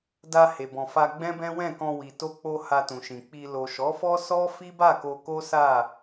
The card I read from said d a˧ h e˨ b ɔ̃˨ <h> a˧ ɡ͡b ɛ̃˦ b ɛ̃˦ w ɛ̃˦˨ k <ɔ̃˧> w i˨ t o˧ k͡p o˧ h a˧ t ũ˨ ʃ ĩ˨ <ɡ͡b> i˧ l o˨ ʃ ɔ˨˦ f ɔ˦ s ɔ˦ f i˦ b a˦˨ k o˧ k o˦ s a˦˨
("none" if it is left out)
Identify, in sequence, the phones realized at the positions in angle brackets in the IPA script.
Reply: f, ɔ̃˧, k͡p

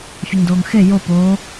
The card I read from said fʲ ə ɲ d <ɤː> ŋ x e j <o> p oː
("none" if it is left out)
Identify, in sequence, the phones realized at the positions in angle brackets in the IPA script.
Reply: oː, o

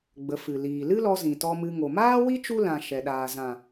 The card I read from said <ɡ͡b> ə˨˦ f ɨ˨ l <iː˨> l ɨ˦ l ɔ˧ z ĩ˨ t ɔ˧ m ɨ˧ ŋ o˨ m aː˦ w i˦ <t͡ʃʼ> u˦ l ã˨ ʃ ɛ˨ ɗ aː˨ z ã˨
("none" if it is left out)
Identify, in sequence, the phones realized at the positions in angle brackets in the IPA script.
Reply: ɡ͡b, iː˨, t͡ʃ

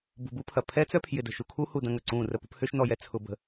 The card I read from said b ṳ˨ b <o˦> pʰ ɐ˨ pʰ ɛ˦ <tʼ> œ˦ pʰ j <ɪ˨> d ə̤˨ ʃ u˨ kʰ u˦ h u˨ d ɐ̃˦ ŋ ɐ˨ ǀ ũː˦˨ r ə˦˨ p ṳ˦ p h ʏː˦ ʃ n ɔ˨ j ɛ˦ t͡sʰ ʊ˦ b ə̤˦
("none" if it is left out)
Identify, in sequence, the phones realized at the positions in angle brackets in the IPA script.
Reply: u˦, t͡s, ɪ˨

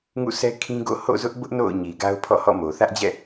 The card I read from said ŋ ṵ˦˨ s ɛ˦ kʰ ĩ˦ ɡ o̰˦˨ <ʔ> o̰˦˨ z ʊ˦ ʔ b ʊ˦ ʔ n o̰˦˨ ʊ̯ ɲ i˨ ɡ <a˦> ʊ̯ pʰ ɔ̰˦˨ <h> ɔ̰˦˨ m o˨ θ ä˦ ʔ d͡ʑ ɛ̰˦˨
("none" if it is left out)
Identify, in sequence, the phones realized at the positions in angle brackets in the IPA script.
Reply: h, a˦, h

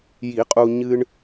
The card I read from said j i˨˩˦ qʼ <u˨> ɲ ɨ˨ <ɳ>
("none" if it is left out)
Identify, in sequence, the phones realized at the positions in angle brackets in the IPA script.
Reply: u˨, ɳ

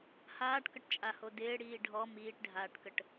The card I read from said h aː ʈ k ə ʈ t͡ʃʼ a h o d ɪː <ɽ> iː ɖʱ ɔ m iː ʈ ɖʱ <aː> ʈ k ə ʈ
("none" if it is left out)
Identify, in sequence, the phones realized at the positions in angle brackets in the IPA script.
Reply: ɽ, aː

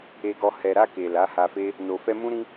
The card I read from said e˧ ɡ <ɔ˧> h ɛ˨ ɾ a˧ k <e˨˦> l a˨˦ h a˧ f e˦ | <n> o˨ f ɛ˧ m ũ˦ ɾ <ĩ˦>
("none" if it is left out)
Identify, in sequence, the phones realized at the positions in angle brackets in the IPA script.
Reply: ɔ˧, e˨, n, ĩ˦

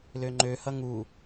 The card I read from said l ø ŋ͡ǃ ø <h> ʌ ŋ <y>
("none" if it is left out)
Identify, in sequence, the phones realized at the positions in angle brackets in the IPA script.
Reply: h, u

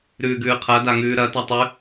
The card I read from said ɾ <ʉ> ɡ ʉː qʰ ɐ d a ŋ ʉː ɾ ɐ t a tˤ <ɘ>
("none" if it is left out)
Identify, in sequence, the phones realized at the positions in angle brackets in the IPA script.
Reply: ʉː, ʉ

